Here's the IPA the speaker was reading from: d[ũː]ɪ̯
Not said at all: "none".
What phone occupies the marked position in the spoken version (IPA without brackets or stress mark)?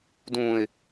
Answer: ũː